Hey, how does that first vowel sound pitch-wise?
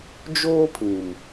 high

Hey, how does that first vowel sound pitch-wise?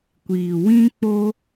low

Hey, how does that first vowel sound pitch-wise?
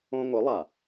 high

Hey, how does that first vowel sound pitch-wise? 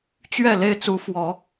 falling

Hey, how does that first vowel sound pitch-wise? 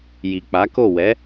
low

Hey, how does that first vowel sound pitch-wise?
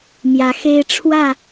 rising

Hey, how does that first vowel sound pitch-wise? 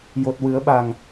low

